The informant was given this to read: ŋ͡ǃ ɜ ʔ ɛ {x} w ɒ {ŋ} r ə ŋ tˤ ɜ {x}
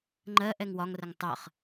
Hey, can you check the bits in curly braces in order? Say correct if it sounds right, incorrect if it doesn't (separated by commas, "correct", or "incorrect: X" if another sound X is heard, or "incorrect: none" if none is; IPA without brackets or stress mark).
incorrect: ŋ, correct, incorrect: χ